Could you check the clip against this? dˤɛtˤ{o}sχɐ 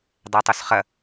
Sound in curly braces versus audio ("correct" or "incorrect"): incorrect